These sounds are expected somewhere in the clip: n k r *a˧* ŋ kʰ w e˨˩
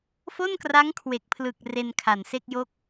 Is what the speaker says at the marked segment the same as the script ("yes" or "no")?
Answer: no